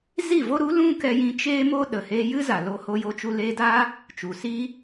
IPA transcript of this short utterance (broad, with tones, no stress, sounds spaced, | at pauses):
z i˦˨ v o˦ ɾ u˨˦ l ũ˦ k ɛ˧ j ĩ˧ t͡ʃ eː˦ m o˦ ɗ ə˨ h eː˧ j ɨ˦ z a˨ l o˧ h o˧ j o˧ t͡ʃ u˧ l eː˧ d aː˦ | t͡ʃ u˨ s iː˦